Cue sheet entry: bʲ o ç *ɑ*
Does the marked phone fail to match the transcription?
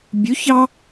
no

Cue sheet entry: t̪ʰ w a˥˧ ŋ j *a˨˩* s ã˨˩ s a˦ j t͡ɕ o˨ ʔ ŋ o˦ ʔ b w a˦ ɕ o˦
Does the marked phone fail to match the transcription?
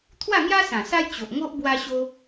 yes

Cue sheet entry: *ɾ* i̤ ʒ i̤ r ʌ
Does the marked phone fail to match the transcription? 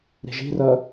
no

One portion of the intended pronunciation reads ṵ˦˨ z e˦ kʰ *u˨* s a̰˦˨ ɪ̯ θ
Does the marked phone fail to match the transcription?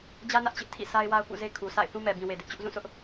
no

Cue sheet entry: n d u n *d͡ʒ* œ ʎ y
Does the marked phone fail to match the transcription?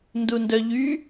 yes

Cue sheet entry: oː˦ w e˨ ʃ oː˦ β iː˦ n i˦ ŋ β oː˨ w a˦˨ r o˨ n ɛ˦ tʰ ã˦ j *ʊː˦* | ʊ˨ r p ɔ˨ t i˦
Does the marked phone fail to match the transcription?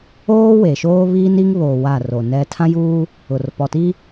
yes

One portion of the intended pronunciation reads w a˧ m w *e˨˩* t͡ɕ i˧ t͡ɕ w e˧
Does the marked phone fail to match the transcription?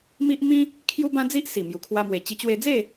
no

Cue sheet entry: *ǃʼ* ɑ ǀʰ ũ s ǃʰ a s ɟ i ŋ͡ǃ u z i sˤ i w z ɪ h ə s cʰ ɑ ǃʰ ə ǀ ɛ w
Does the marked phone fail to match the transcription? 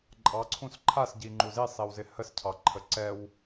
no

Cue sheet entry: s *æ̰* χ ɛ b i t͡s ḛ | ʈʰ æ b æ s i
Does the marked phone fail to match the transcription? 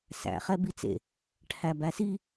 no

